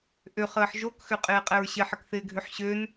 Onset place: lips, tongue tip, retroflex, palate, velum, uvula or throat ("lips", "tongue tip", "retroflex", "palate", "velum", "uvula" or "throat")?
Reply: throat